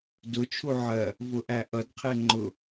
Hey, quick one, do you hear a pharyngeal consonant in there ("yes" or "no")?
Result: yes